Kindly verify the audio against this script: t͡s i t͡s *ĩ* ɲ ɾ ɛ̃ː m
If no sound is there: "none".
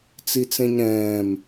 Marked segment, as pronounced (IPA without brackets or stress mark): ẽ